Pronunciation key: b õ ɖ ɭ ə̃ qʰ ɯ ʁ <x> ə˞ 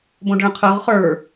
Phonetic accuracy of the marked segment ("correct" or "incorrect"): incorrect